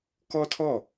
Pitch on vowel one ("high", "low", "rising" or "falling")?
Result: high